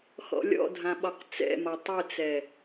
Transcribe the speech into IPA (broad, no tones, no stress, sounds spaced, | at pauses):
x ɔ̰ lʲ ɔ̰ dʱ ã ɓ ɒ q t͡s ɛ̰ m ɒ tˤ ɨ t͡s ɛ